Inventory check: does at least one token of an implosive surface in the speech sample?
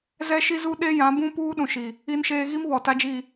yes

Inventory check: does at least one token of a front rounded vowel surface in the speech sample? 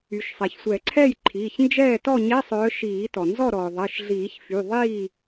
yes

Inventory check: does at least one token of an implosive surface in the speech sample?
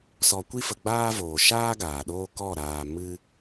yes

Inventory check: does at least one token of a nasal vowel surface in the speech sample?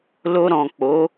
yes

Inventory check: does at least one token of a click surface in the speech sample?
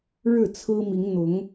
no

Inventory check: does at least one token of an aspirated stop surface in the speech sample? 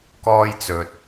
no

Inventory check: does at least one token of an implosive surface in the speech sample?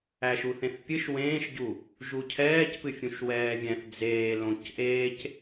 no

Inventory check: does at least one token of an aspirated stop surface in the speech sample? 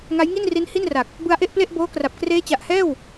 no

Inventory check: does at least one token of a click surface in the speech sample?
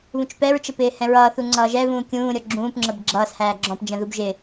yes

